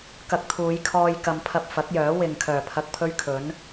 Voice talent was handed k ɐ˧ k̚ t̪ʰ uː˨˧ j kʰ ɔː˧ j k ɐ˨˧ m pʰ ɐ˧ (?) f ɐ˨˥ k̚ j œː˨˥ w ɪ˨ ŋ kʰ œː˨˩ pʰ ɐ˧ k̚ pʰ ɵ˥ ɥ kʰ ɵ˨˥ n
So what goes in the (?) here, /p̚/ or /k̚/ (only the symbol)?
p̚